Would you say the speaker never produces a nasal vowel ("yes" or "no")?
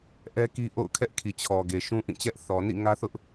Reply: no